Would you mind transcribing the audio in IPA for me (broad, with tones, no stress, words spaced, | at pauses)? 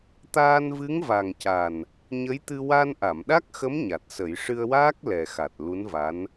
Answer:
t̪aː˧nvɨ˧˥ŋva˨˩ŋ ca˨˩n | ɲə˧˥jt̪ɨ˧ wa˧nʔa˨˩˨mɗa˦˥k̚xə˧˥m ɲa˨˩t̚sə˨˩˦j ʂɨ˧ə̯waː˦˥k̚ lɛ˨˩xa˨˩t̚ lu˧˥nva˧˥n